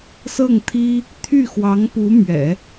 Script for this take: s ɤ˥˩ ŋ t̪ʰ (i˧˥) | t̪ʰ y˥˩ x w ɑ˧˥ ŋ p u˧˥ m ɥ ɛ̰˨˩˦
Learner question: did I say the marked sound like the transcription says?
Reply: no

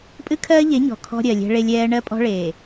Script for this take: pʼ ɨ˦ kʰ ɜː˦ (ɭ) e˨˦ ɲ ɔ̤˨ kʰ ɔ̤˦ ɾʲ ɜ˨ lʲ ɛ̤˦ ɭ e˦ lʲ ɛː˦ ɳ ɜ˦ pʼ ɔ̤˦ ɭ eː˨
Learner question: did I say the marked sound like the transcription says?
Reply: no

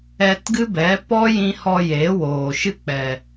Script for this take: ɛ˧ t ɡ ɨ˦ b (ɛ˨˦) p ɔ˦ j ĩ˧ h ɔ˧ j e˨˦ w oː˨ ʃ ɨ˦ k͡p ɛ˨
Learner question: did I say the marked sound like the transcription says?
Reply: yes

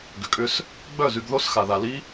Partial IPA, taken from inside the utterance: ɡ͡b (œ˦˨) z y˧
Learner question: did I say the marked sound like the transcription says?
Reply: yes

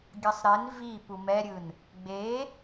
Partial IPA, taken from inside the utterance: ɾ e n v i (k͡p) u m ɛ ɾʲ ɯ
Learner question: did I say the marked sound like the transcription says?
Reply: no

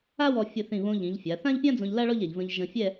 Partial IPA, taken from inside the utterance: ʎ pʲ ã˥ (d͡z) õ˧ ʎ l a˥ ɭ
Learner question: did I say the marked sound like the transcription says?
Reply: yes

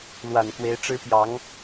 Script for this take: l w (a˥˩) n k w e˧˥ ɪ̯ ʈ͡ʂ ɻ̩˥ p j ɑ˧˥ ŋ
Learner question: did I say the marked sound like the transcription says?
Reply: no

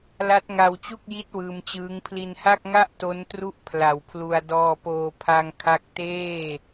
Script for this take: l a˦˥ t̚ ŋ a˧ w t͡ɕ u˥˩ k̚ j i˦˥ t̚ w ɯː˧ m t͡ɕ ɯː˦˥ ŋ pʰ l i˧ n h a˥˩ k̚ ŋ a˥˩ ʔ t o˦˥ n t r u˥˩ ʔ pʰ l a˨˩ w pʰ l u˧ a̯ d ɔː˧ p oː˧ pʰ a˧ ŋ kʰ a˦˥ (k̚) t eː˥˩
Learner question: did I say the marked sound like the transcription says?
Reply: yes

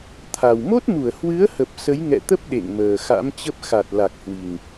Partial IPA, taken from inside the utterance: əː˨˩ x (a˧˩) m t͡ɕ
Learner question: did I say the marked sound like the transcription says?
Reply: no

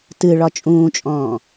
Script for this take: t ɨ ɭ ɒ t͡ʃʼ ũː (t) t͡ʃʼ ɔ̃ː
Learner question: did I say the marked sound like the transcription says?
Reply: no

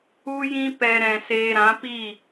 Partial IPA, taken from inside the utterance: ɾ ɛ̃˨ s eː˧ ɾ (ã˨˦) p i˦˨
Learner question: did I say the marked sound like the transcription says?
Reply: yes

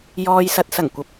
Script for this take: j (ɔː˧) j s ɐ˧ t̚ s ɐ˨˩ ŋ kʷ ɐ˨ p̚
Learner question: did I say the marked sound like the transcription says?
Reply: yes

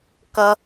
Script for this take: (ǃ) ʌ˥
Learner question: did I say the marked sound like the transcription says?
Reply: no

